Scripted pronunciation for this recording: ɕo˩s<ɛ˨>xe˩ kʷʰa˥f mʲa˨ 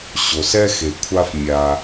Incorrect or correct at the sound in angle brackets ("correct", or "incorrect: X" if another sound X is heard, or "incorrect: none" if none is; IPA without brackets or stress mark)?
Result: incorrect: ɛ˥